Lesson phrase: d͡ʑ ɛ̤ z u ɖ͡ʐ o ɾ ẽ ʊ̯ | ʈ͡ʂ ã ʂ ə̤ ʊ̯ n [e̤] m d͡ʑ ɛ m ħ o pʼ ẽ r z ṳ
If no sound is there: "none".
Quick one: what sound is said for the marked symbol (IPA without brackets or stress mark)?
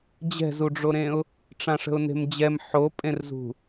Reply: e̤